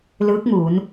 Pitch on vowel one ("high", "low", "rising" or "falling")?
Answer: rising